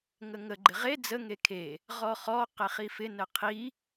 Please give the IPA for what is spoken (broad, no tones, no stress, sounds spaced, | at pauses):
ŋ ə ŋ ə ɡ͡ǃ ɪ ʁ e d͡z ə ŋ e kʰ e | ʁ ɔ χ ɔ q e χ i f ɪ n ə qʰ i